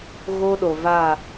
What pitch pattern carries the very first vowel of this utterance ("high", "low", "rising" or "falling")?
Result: high